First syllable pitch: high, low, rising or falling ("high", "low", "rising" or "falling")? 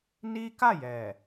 high